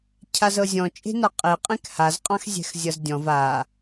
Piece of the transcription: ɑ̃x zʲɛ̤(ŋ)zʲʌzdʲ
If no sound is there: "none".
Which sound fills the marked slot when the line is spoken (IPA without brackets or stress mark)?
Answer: x